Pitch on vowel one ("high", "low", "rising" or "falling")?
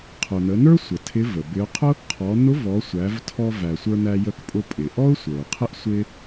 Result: low